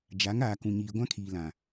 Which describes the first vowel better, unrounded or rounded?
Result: unrounded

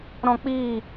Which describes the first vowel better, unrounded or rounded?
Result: rounded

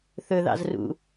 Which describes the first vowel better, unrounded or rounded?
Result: rounded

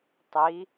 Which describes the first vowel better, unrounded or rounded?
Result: unrounded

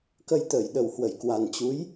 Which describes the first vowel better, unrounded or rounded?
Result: unrounded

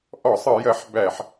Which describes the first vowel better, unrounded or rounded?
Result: rounded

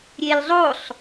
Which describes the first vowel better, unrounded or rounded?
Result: unrounded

